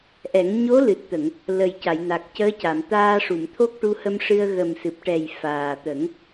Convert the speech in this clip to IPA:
ʔɛ˨˩˦ŋ ɲo˧˥lɨ˨˩t̚t̪ə˨˩˨ŋ | lə˨˩jca˨˩˨jna˨˩k̚ cəː˧˥ca˨˩˨mt̪aː˧ʂu˨˩˨m t̪ʰo˦˥k̚ʈu˧˥hə˧mʂɨ˧ə̯ ɣə˨˩msɨ˨˩p̚ʈɛ˨˩j faː˨˩t̪ə˨˩˦ŋ

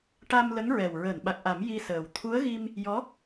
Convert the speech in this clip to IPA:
ʈa˧mlə˧˥ŋɹɛ˨˩w ɹəː˨˩˨nɓa˨˩k̚ʔa˨˩˦m ji˧səː˨˩w t̪ʰu˧˥ə̯ɣi˧m | jɔ˧˥

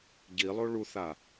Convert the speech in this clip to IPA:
ɟilˠo ɭuθa

